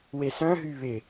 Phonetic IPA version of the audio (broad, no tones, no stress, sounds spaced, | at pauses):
w e s œ̃ ɦ y β ɪ